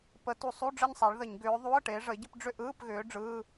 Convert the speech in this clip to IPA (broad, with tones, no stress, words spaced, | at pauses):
pə˨˦tu˧˩˧ sˤu˧˥˧ ɖ͡ʐə˥˧ɲsˤa˨˦ɭ ðə˧˩˧ɲ ɡʏː˨˦ ðˤu˧˥˧ə̯ʈe˨˦ ʐə˨˦ɪ̯ɟə˥˧pɖ͡ʐʏ˥˧ ʔɯː˧˥˧pɣʏː˨˦ ɖ͡ʐɯː˧˥˧